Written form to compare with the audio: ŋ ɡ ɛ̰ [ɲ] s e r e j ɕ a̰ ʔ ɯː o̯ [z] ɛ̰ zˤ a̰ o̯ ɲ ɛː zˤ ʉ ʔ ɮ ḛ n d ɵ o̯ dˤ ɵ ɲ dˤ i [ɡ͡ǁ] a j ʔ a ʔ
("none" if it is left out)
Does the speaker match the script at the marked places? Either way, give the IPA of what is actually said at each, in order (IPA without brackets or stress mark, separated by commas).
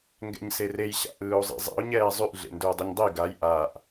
ɲ, zˤ, ɡ